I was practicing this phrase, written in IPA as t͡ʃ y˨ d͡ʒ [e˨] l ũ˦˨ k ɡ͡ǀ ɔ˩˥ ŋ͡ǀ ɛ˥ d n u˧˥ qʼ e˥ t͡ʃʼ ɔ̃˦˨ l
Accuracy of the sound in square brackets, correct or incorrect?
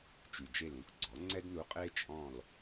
incorrect